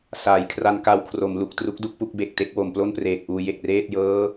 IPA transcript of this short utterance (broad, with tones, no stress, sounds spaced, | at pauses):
s aː˩˦ j kʰ r a˧ n k a˧ w kʰ r o˩˦ m l u˨˩ k̚ t r u˦˥ k̚ d u˥˩ k̚ p u˥˩ k̚ b e˨˩ k̚ t e˥˩ k̚ w o˩˦ m p l o˥˩ n p r eː˨˩ k̚ ʔ uː˧ j e˨˩ k̚ r eː˥˩ t̚ j ɤː˦˥